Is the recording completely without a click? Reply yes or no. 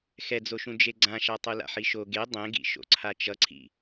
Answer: no